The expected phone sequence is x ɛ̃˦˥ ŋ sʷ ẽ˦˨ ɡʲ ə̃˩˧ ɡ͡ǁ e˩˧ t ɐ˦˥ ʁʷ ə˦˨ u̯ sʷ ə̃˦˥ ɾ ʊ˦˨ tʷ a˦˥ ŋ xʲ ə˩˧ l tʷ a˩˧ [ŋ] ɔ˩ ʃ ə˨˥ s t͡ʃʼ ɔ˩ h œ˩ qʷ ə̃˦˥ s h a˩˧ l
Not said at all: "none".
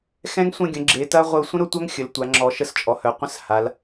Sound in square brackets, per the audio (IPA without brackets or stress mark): ŋ͡ǁ